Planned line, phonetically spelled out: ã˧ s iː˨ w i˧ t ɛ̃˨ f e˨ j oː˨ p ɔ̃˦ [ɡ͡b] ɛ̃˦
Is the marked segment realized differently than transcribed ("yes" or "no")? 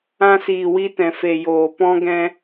yes